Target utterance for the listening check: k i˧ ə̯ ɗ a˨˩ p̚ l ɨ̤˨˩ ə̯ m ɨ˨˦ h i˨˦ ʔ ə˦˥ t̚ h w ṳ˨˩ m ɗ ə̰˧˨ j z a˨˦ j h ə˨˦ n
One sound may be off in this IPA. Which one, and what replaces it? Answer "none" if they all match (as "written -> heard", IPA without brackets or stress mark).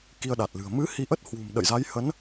p̚ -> t̚